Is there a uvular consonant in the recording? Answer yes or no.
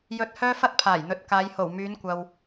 no